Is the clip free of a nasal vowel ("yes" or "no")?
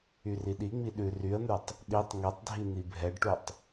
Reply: yes